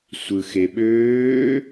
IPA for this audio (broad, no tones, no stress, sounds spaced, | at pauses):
sʷ ɯ x e ɓ øː